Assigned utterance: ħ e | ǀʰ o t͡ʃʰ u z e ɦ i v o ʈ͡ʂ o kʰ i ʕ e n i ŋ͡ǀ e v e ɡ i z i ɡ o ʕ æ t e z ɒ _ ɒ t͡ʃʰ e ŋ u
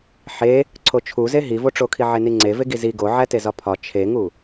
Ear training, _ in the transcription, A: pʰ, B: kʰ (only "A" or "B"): A